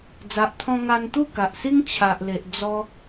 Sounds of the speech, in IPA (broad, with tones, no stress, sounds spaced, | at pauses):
d͡z a˨ ʔ t̪ʰ ɔ̃˧ ŋ a˧ n t̪ u˥˧ k a˨ ʔ s i˦ ŋ t͡ɕʰ a˨ ʔ l e˨ ʔ d͡z ɔ˧